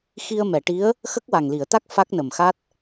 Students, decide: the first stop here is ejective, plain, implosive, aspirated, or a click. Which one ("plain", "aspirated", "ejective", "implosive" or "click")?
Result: plain